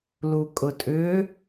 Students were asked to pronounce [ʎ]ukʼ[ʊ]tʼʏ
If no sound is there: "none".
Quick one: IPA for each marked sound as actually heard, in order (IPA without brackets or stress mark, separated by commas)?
l, ʊ